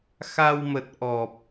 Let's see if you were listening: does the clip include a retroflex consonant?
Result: no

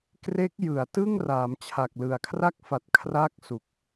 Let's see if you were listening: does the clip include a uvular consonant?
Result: no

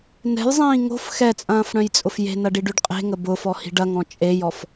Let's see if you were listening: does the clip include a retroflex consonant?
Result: yes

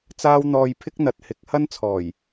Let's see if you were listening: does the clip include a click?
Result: no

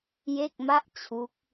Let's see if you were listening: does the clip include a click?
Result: no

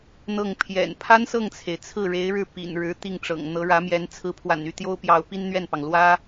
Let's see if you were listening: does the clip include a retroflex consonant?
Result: yes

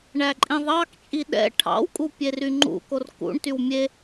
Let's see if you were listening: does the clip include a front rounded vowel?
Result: yes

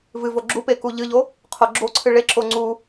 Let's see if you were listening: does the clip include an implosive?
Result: no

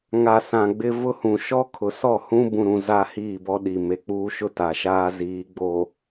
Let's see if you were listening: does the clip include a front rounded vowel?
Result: no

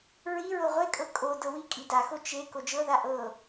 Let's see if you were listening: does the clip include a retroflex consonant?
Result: no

